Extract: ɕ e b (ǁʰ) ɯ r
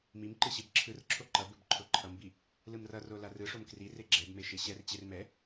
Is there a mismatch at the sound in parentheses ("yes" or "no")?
no